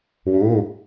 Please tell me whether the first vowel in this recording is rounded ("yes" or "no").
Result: yes